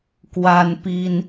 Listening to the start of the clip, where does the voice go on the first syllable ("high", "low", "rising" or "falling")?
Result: high